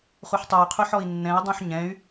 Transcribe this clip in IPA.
χuħtˤuy̯qʰuħ ɔi̯nːɛ̃i̯ dˤũħɲɛ̃y̯

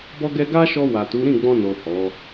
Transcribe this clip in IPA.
bɔ˧ɡɛ˧ ɡa˦ʃɔ˧ wa˨tu˨˦ ɾĩ˦˨ɡ͡bɔ̃˧no˨ hɔ˨˦

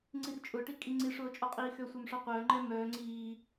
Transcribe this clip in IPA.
ŋ͡ǀirt͡ʃʼʊʈi kʼiŋ͡ǀiʂʊː t͡ʃʼɔqʼiːxøsʷɛm ʂɔqʷœːŋ͡ǃɛ mœː ŋ͡ǀiː

